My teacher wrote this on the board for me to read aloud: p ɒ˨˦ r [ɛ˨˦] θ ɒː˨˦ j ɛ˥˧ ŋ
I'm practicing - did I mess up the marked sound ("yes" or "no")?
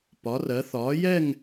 yes